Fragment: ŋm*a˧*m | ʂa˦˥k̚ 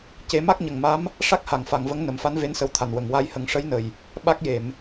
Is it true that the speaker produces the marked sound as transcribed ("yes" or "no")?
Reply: no